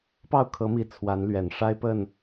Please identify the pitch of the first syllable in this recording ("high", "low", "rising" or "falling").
falling